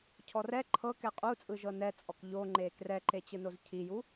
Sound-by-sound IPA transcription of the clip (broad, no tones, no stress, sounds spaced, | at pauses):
cʰ ɔ r ɛ ǃʰ ɤ k ɛ qʼ u t͡sʼ ɯ ʒ ɤ n ɛ t͡sʼ ɔ k ʎ o ŋ͡ǃ e k r ɛ ǃ e t͡ɕ ɯ n o z cʰ i j u